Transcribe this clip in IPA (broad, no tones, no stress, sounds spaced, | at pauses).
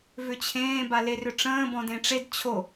v ʏ t͡ɕʰ ẽː b a l e r ʏ ʈ͡ʂ ə̃ː b ɔ̃ d ẽ ʈ͡ʂ e d t͡ɕʰ o